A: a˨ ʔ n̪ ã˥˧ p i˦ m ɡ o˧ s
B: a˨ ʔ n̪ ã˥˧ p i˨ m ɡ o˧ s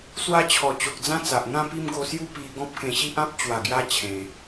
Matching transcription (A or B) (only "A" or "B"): A